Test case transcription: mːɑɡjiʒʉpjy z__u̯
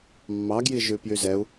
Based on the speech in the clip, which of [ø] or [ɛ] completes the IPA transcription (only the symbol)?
ɛ